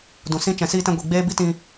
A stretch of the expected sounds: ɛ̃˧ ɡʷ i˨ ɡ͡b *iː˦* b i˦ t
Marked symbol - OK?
no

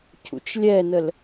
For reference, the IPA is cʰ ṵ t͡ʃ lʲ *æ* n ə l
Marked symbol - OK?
no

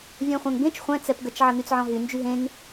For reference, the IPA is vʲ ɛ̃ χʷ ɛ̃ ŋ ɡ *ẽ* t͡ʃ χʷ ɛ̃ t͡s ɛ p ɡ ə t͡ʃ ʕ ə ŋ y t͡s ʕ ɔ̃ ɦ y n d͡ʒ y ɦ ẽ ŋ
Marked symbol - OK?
yes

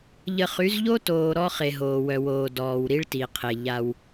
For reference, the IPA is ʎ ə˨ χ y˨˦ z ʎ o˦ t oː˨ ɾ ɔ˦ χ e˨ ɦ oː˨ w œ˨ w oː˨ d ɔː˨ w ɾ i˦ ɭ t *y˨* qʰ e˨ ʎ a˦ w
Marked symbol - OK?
no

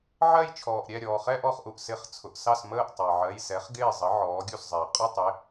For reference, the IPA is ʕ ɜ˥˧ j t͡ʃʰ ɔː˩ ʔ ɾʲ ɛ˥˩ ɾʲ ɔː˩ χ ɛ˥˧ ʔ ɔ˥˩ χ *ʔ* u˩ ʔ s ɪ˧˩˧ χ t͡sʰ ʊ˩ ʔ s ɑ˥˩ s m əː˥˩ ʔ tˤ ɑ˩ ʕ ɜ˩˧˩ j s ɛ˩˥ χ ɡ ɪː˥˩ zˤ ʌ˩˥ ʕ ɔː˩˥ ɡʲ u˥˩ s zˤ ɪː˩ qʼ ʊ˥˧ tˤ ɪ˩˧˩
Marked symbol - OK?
yes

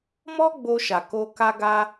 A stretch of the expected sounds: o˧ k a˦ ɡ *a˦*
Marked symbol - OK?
yes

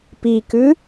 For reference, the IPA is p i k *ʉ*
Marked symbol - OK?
yes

